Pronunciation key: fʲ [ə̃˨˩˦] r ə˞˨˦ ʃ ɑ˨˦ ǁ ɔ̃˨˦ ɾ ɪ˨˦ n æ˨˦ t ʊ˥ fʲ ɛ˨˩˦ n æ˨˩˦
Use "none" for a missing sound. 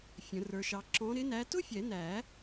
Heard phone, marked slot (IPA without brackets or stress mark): ə̃˨˩˦